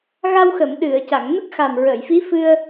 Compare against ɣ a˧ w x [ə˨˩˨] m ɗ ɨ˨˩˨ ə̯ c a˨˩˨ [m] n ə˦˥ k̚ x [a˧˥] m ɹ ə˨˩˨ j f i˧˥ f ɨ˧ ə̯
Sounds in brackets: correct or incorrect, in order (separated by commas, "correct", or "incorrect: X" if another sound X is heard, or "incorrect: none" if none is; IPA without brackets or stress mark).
correct, incorrect: ŋ, incorrect: a˨˩